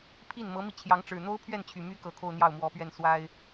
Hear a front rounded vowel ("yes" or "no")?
yes